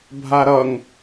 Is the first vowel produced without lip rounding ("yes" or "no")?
yes